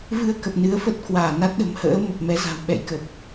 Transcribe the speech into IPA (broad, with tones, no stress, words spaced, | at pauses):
vɨ˧ə̯kə˨˩p̚ nɨ˨˦ə̯fə˦˥t̚kwaː˧˩ na˦˥t̚ɗə̤˨˩mhə̰ː˧˥ mə˨˩p̚mɛ˨˦ za̤˨˩w ɓɛ̰˧˨jkə˨˩p̚